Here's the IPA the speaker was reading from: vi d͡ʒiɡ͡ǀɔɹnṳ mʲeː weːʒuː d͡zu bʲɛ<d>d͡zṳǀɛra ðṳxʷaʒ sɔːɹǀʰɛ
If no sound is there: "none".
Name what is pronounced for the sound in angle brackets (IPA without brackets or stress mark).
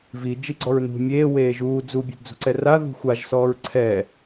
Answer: d